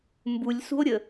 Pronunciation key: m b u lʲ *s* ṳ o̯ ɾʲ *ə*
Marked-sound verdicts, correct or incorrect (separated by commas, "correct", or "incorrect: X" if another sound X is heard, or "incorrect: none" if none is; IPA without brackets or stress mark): correct, correct